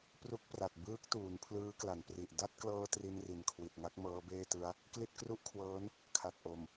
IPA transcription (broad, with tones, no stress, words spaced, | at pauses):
pru˦˥k̚pra˨˩t̚ bɯː˦˥k̚ tuː˩˦npʰlɯː˦˥kla˩˦npri˨˩ʔ da˥˩t̚klɤː˧ tri˧nri˨˩nkʰwi˨˩t̚ŋa˦˥k̚ mɤː˦˥beː˥˩tɯ˦˥a̯ | kli˥˩t̚kru˥˩ʔkʰwɤː˦˥n | kʰa˨˩t̚ʔo˨˩m